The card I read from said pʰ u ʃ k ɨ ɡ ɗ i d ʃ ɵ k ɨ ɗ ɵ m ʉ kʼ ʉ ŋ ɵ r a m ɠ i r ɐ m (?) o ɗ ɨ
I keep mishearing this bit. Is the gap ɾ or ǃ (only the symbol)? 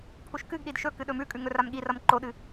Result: ǃ